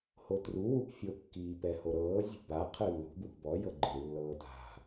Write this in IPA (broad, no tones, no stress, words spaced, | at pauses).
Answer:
hotru wupfʲo kːiːpɛhoɾɤː zʲṳba qʰɯlːṳ bwṳbɔ jɤɡ͡ǃɯ lːɤːta̤